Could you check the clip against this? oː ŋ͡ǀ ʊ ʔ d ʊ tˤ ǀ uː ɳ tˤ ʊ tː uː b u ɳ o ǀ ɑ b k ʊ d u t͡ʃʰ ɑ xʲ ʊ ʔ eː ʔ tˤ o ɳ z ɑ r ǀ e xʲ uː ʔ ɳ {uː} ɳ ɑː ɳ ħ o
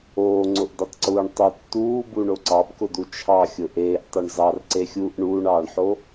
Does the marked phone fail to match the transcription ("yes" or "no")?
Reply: no